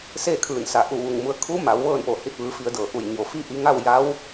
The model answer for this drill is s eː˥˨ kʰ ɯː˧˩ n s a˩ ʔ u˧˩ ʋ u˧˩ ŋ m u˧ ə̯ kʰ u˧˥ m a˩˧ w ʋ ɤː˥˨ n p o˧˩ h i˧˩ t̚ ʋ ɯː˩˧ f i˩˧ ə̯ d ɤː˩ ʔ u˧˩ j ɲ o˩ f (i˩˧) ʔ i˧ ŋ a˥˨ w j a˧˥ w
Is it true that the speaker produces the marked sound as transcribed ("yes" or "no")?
no